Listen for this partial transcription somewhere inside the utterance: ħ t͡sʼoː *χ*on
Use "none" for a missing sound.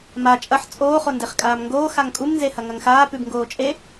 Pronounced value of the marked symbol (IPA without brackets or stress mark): χ